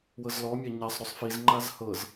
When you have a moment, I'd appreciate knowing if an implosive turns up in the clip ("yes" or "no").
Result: no